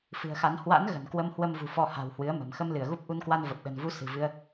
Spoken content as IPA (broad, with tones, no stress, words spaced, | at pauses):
fɨ̤˨˩ə̯xa˨˦n hwa̰˧˥n ɣə̤˨˩nkwə˧mhwə˧m vṳ˨˩fɔ˧ ha̤˨˩whwɨ˨˦ə̯mə̤˨˩m xə˧mlɨ˧˩ə̯ɣu˦˥p̚ ʔu˧nkwa˧nvə˨˩p̚ ɗə̤˨˩nvu˧ sɨ̤˨˩vɨ˧ə̯